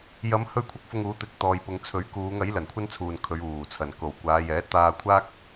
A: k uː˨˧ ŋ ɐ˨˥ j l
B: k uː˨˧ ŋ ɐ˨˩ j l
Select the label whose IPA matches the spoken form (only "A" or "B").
A